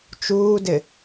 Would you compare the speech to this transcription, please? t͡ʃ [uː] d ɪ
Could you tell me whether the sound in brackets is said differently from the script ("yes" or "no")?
no